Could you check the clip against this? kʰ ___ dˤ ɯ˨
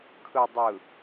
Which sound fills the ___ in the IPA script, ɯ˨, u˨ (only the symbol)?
ɯ˨